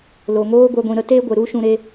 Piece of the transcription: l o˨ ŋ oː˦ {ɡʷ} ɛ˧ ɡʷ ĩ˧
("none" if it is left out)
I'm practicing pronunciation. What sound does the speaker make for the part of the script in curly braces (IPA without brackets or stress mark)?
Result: ɡʷ